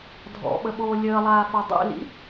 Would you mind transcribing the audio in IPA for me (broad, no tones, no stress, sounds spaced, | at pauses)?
dʱ ɔ̰ ɓ ə ɓ oː lʲ əː lˠ aː f o dˤ ḭ l ḭ